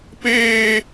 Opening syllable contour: high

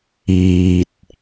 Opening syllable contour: low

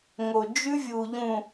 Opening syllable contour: low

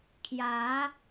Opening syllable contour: rising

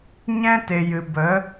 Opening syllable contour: high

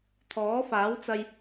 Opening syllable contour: rising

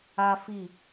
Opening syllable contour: high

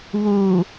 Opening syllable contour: low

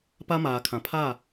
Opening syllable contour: high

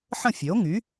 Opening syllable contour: falling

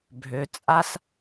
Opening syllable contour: low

